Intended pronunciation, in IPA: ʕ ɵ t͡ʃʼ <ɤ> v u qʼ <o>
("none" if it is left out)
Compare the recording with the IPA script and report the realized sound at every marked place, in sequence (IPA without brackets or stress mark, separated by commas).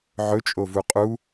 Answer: o, u